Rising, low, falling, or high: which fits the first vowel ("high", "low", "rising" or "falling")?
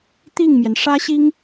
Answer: falling